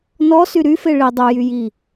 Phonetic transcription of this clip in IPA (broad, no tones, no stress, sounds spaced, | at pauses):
n ɔ s y ɾ y f e ɭ i dˤ u j y j i